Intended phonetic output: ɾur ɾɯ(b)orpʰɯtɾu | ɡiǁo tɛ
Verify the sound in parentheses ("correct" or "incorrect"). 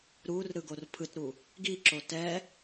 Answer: incorrect